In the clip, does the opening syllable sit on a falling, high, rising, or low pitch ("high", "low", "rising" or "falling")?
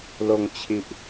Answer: low